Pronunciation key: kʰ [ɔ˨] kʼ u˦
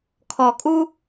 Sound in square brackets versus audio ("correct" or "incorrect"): correct